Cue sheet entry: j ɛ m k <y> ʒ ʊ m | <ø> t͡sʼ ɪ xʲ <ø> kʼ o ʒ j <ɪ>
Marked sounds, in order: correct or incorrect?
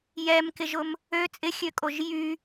incorrect, correct, correct, incorrect

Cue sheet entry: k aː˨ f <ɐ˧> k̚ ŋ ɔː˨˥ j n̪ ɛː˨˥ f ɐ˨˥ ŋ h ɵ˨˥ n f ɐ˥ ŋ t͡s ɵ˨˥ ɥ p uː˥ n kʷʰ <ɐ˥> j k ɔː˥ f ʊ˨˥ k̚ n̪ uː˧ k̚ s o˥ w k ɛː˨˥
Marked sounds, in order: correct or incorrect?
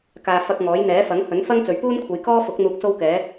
correct, incorrect

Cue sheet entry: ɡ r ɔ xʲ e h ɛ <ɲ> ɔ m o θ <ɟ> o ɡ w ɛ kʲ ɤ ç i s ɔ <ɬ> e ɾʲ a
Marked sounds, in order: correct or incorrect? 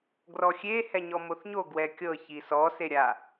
correct, incorrect, incorrect

